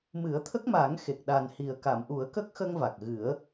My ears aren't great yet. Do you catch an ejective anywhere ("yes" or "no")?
no